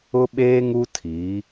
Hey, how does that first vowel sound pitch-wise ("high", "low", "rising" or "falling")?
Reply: high